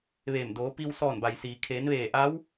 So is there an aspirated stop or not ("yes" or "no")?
yes